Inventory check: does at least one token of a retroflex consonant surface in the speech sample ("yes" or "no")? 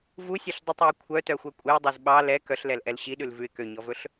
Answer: no